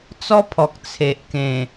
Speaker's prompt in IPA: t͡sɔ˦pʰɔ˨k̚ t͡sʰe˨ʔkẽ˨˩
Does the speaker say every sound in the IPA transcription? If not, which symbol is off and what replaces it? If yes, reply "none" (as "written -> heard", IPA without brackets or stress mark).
none